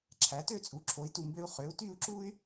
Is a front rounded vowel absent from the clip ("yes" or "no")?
no